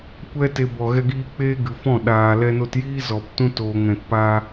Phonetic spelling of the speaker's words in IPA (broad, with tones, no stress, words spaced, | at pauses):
kʷɛ˦te˧bɔ˨ ɣɛ˧ɡiː˧ k͡peː˦ɡɨ˨ fɔ̃˦˨ ɗaː˨ lɛ˧no˧tjiː˦ zɔ˨ptũ˦ toː˨ŋɛ̃˨tpaː˧